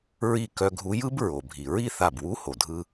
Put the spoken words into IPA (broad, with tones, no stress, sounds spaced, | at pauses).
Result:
ɹ i˧˩ k œ˧ ɡʱ u˧˥ j ɯ˧˥ b ɹ o˩ bʱ i˩ ɹ i˥˧ θ a˧˩ b w u˧˥ h o˩ dʱ ɯ˧